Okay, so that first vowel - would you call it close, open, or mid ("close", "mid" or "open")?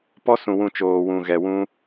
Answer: mid